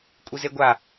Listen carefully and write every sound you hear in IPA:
kʷʼ i z e ɡʷ a

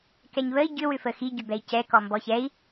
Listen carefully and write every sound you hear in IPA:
k ɛ ɲ β ə i̯ ɟ ʏ w ʏ f ə x i ɟ ʏ b ɛ i̯ c ɛ k ɔ m b ɔ ç ɛ i̯

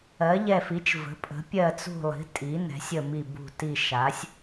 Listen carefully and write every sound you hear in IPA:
ɜ˩˧ ʎ ɛ˨˩ f i˩˧ t͡ʃ v ə̤˩˧ pʼ ə̤˩˧ pʲ ɜ˨˩ t͡s ṳ˨˩ lˠ i̤˩˧ tʼ i˩˧ n ɛ̤˩˧ sʲ ə˨˩ m i˨˩ b ṳ˨˩ t i˨˩ ʃ a˩˧ sʲ

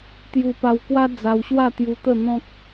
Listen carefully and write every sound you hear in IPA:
t̪ j u˧ p a˧ w k w a˦ d͡z a˧ w ɕ w a˥˧ t̪ j u˧ t̪ ə˥˧ n̪ ɔ̃˦ k̚

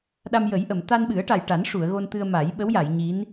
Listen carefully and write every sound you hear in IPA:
ɗ a˧ m j ə˨˩˦ j ʔ ə˨˩˨ m t̪ a˧ n ɓ ɨ˨˩˦ ə̯ ʈ a˨˩ j ʈ a˨˩˦ n ʂ u˨˩˨ ə̯ ɣ o˧ n t̪ ɨ˧ ə̯ m a˨˩˦ j ɓ ə˧˥ w j a˨˩˨ j ɲ i˧˥ n

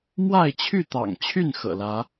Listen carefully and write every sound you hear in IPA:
m w a˥˨ ɪ̯ t͡ɕʰ y˥˨ t̪ ɑ̰˨˩ ŋ t͡ɕʰ y˥˨ n x ɤ̰˨˩ l ä˨˦

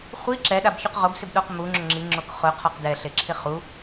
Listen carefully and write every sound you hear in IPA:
χʷ i ǁ ɛ ɗ a b ç u q ʁ o b s ɪ b ɗ o q m u ŋ͡ǁ ʊ ŋ͡ǁ i ŋ͡ǁ o k χ ʊ qʰ ɔ q d ɛ ɬ e ǁʰ ɪ χ u

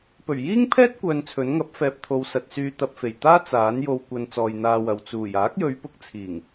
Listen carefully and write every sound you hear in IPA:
p ɵ˨˩ ɥ j iː˥ ŋ pʰ ɛː˥ t̚ kʷ œː˧ n t͡sʰ ɵ˨˥ n ŋ ɐ˨˥ p̚ f ɛː˨ p̚ t̪ʰ o˨˧ w s ɐ˨ t̚ s yː˧ t̪ ɐ˧ p̚ f e˨˩ j t̪ aː˥ t͡s aː˨˥ n j o˨ w kʷ ɐ˨ n t͡s ɔː˧ j n̪ aː˧ w ɐ˨ w t͡s uː˨˩ j aː˨˥ k̚ j ɵ˨˧ ɥ p ʊ˧ k̚ t͡sʰ iː˨˩ ŋ

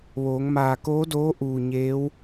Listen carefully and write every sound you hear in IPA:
ʋ oː˩˧ ŋ m aː˧˩ k oː˧˥ d oː˧˥ ʔ uː˧˩ ɲ eː˧˥ w

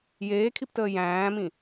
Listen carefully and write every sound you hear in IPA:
j eː kʰ i p t əː j æ̃ː m ĩ

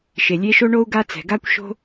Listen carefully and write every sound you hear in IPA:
ʃ e˩ lʲ e˧˥ ʃ o˥ ɳ o˥ u̯ ɡ a˥ t͡s ɛ̤˩ ɡ a˥ kʷ ʃ o̤˥

